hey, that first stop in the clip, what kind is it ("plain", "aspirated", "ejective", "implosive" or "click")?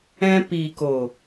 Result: plain